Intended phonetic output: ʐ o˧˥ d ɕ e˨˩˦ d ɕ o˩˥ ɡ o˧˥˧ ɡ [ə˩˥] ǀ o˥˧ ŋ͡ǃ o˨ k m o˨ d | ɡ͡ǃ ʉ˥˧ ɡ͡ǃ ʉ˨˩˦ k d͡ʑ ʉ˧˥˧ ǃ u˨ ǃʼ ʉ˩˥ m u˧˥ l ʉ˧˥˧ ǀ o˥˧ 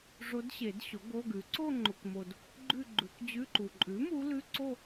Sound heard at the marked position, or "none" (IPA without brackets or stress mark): ʉ˩˥